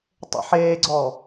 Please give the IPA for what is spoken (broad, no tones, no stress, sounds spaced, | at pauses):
tˤ ḛ ħ eː ɡ͡ǀ ɔː